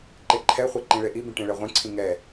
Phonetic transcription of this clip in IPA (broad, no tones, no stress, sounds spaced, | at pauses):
ǃ e ǃʰ ɛ χʷ ɛ ǃ ĩ ɭ e ʔ i b ĩ ʈ ẽ ɭ ɛ ʁʷ ẽ ǀʰ ĩ ŋ ɛ